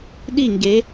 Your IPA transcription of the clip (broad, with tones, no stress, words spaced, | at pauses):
ɗi˥˧ŋɡe˨˦